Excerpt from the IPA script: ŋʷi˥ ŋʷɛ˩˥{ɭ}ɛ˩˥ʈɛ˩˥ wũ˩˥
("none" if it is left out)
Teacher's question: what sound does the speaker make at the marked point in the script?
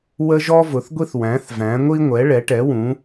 ɭ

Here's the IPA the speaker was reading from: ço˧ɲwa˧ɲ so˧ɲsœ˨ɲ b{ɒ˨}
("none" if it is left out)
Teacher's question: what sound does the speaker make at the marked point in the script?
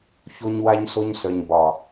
ɒ˨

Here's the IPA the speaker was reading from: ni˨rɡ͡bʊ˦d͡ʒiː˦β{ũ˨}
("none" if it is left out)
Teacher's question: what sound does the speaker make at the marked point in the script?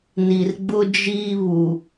u˨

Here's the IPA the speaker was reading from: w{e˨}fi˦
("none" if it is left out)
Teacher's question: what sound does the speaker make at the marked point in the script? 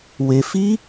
e˨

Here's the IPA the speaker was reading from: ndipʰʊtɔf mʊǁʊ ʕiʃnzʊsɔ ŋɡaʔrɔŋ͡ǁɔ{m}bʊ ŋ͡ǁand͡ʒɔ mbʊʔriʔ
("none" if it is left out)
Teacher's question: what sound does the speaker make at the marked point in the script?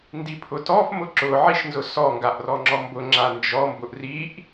m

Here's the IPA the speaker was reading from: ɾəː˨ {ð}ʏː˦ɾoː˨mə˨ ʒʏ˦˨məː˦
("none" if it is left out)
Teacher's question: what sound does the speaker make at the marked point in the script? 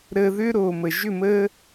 ð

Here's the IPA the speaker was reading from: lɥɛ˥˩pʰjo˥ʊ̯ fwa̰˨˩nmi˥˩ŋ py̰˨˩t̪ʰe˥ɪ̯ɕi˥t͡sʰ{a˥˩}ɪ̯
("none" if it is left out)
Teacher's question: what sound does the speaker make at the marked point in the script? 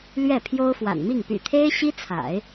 a̰˨˩˦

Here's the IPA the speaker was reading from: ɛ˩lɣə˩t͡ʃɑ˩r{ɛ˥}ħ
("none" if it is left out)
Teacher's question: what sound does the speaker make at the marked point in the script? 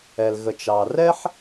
ɛ˥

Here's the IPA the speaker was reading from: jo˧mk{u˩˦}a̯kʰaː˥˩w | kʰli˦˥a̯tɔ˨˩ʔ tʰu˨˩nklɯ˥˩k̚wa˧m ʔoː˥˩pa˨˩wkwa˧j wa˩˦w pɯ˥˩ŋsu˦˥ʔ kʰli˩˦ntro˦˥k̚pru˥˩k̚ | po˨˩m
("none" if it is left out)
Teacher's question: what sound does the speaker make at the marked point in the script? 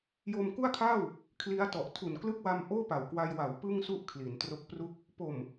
u˥˩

